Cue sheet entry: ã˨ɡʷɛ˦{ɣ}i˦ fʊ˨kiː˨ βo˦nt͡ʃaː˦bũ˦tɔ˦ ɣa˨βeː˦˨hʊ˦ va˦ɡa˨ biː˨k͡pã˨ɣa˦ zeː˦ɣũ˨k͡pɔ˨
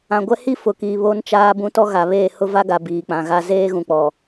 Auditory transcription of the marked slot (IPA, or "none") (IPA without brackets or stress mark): h